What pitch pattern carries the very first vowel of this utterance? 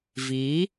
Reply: rising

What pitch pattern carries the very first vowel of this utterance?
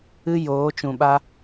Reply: high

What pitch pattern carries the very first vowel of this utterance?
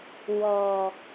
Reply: low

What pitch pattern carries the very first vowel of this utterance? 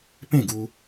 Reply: falling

